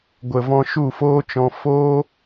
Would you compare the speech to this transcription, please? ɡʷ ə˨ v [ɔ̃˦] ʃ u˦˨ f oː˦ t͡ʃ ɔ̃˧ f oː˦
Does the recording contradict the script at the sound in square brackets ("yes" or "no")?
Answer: yes